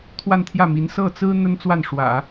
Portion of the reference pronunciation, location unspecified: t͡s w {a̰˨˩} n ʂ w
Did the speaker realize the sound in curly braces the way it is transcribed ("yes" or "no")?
no